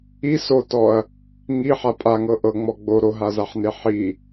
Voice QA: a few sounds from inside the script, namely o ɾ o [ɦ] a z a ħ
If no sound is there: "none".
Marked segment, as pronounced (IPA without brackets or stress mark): ɦ